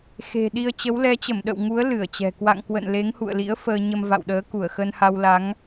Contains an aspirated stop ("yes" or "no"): no